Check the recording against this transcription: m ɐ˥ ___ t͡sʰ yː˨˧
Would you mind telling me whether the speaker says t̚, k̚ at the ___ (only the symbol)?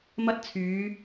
t̚